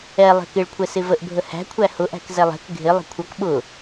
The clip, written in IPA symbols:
ɛ lˠɛ̤kɪɭkʷʰɛ sɪvəʔbʱə hæ̤kʷʰæ hʊʔæ̤k zɛlˠɛ̤k ɡʱɪ lˠə̤kʷʰʌk ɓʊ

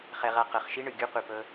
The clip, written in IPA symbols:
χɛ˦ʁa˥ qɤ˨χʃi˥ ɳɯ˩ɡʲu˥ qʷi˨pɤ˦

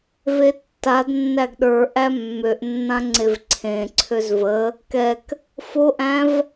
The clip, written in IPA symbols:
vetːadnːæɡ ɗə˞ʔæ mːøʔnːã ŋ͡ǀevǀʰẽǀʰøz və | kɛk | foʔæ̃v

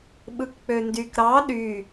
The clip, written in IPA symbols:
ɓɯkk͡pøndyk ɾɑ ɗy

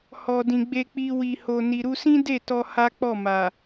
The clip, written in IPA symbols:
hɔ˨dĩ˨ ɡ͡be˧k͡pi˧ wi˨ho˨ ni˨ɾu˧sĩ˦ de˦˨ tɔ˧ ha˦k͡pɔ˦˨ma˨

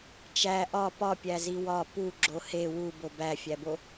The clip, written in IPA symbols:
t͡ʃæ ʔɒ pɒ pʲæziwɒ pu ɡ͡ǁohe wu bobæfʲæbo

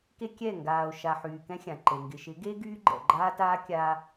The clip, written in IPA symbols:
ke˦kʲɛ˦˨ ŋɡaː˨o̯ʃa˨ ħyː˨kɛ̃˦ xʲã˨ǃe˨ ŋɡɪ˨ ʃɪ˨˦ ɡe˦ ɡyː˦ɡ͡ǃɛ̰˨ ɡ͡ǃaː˦taː˦ kʲaː˦

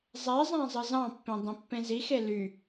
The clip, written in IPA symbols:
zˤezˤæ̃ zˤɯzɑ̃pːẽ dˤẽpːẽzixe ly

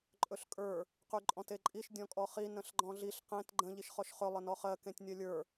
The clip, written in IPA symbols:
ǃʼɵɬkʼə˞ | qyǃʼɔ̃teǃʼiʃ dʲɔ̃kʼɔχi nə̃ɬɡ͡ǃɔ̃ɮiɬ qẽt ɡ͡ǃə̃ ʎiʃχɔʃχɵ lˠənɔχɜ kẽtʲnʲɜlʲə˞

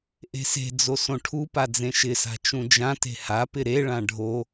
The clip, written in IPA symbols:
ʔe̤se̤d͡zo sõʈʰupa d͡zẽʃɪsa̤ t͡ʃũd͡ʒãte̤ hapɪ ɾeɭã ɖʱo

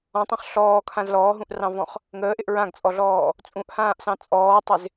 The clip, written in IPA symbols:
ɔ̃tˤɑ̃χ ɬɔːkʰãz lɔːɦũʔrɑ̃vɔ̃χ | ŋəːʔɪʔ ɹãɡt͡sʼɔɮɔː | t͡sʼũʔhãːʔsɑ̃ t͡sʼɔːtˤɪz

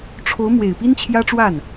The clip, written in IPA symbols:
ʈ͡ʂʰo˧˥ʊ̯ mwe˨˩ɪ̯ pi˥nt͡ɕʰjä˥ʈ͡ʂwa˥˩n

